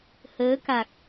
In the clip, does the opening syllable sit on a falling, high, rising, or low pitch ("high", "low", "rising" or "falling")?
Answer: rising